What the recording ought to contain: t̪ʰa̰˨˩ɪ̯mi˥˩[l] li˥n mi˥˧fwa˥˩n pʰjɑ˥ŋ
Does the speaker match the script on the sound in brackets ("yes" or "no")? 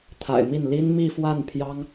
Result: no